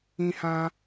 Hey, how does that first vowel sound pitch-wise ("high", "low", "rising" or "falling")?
high